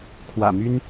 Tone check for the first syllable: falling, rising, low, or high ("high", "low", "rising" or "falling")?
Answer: low